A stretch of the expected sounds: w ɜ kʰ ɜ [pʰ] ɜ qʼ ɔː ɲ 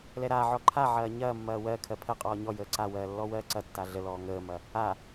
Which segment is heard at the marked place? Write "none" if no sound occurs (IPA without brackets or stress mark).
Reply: pʰ